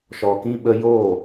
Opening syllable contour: low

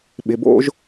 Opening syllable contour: low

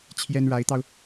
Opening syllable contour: high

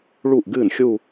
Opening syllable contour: falling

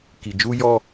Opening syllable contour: low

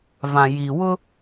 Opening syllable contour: low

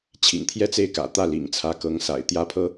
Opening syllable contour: low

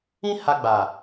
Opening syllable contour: high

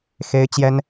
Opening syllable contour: high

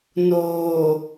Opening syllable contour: low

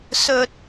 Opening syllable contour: low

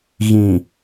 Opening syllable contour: low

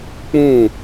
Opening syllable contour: falling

